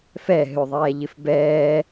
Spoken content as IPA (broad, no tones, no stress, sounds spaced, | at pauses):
f ɛ ɦ ʏ ðˤ ɛː ʎ ɪ f b ɛː